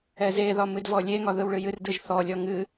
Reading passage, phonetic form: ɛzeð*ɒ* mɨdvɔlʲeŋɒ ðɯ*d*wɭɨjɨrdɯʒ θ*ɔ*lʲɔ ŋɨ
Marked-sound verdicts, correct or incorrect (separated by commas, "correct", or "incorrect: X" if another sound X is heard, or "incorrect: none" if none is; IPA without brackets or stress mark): correct, incorrect: none, correct